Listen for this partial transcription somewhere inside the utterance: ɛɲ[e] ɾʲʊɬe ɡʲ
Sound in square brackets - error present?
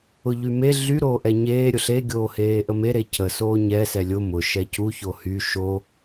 yes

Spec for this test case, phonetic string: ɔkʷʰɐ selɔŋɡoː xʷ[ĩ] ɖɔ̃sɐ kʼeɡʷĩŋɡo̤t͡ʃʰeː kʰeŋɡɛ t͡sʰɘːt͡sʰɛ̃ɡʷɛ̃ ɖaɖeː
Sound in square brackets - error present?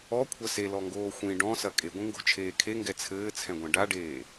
no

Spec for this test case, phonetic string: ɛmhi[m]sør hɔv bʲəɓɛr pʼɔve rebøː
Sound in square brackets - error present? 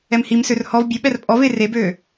no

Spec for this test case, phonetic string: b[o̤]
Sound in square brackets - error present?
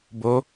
yes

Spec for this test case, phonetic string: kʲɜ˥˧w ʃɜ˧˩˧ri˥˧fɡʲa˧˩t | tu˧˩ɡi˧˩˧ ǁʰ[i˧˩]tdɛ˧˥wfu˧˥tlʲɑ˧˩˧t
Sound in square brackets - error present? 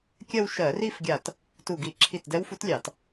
no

